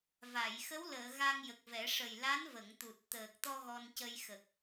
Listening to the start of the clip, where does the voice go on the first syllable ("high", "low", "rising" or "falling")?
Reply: low